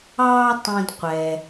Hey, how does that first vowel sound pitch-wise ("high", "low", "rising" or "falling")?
high